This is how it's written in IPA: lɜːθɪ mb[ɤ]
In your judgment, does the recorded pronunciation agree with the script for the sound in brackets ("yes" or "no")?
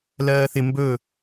no